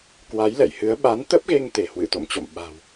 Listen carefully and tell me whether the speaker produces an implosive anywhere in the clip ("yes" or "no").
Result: yes